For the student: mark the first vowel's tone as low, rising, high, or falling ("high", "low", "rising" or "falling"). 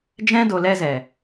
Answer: high